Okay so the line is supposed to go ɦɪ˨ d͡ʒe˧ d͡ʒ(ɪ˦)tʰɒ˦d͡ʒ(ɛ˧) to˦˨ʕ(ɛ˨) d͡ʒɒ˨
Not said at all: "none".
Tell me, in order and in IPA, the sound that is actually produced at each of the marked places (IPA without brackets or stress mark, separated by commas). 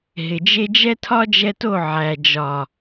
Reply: ɛ˦, ɛ˧, æ˨